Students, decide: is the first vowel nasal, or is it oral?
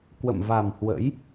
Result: oral